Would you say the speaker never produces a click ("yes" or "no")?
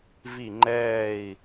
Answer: no